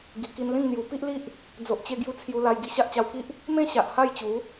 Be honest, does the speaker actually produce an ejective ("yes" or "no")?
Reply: no